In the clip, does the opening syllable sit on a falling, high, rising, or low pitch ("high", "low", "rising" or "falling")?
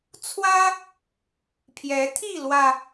high